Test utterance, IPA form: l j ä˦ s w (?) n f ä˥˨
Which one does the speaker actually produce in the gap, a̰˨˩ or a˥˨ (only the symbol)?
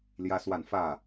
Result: a˥˨